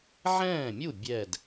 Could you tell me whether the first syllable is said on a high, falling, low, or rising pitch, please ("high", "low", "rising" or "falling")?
falling